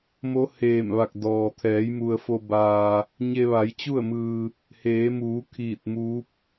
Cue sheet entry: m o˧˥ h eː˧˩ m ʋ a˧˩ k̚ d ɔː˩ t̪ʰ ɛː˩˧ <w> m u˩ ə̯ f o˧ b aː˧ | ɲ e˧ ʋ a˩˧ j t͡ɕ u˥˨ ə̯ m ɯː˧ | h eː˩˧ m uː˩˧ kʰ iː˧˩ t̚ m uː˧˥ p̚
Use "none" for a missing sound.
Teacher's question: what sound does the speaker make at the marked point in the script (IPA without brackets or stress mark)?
j